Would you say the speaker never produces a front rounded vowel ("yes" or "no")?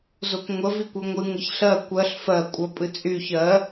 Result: no